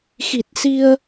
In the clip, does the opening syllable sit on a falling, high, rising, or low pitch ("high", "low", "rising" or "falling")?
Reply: low